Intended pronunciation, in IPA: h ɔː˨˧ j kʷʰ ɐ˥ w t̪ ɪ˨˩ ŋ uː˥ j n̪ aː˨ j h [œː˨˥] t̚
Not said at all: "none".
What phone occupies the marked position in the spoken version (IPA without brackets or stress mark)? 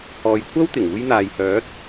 œː˨˥